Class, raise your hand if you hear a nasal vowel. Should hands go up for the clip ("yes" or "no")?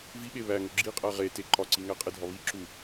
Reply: no